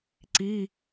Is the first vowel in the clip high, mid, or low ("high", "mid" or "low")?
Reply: high